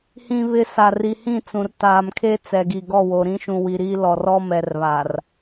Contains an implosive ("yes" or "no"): no